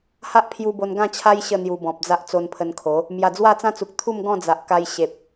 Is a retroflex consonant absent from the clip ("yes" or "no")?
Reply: yes